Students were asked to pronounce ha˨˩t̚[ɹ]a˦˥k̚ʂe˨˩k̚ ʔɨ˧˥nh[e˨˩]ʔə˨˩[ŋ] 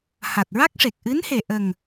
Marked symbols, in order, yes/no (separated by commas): yes, yes, yes